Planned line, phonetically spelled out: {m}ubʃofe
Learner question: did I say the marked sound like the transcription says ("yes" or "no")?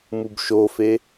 yes